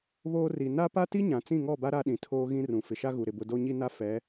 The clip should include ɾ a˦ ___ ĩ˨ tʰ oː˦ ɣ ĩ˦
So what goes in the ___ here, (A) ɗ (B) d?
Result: A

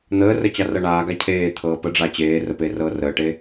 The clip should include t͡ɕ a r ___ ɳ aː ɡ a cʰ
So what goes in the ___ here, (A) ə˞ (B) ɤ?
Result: B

